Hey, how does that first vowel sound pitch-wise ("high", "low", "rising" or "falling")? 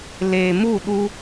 low